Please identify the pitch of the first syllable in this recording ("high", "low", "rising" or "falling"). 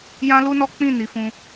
high